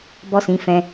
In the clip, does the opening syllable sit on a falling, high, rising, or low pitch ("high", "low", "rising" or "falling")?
high